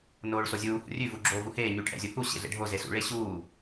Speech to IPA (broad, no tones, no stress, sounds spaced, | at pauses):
n oː ɭ s o zʲ uː h ṵ rʲ ʉ v u ɡ͡ǁ oː v u h eː ɲ ʉ ʈʰ ɛ̰ zʲ o h u ɕ ḛ ɮ ḛ ɖʱ o z e s ṵ ɭ e ɕ uː